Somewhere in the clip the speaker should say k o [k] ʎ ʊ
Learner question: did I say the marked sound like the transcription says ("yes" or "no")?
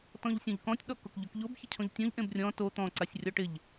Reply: yes